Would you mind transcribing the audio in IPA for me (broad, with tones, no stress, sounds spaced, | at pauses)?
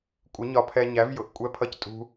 kʷʼ ɪ˨˦ ɲ ɒ˧ pʰ ɛ˧ ɲ æ˨˦ v j ʊ˨ ʔ kʷʼ ɛ˦ pʰ ʌ˦ c tʼ ṳ˦